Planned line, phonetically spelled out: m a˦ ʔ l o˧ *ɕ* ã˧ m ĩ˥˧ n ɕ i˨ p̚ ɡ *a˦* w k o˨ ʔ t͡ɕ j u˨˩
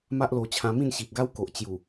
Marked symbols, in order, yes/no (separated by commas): no, yes